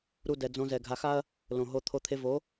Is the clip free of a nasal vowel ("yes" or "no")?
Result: no